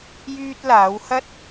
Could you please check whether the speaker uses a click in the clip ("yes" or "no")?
no